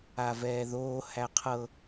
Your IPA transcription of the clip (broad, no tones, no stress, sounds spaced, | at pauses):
a v ɛː ð oː h æ qʰ ɤ